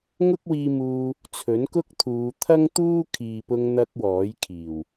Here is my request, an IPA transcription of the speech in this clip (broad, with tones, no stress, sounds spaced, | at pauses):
ŋ ʊ˥ k̚ w iː˧ m uː˧ | t͡sʰ ɵ˨˥ n k ʊ˥ k̚ t̪ʰ uː˨˧ t̪ʰ ɐ˥ ŋ t̪ uː˥ kʰ iː˨ p ʊ˧ ŋ n̪ ɐ˧ k̚ w ɔː˨˥ j kʰ iː˨˩ w